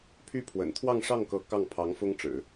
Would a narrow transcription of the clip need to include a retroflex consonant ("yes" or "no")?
yes